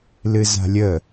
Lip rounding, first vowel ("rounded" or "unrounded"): unrounded